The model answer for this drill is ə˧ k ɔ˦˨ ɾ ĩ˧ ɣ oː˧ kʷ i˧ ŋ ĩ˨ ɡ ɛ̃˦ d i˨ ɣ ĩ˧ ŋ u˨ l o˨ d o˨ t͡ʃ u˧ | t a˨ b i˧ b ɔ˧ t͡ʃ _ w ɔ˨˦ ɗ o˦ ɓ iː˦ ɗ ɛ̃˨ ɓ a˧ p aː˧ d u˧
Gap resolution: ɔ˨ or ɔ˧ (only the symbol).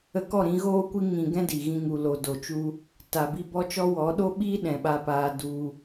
ɔ˧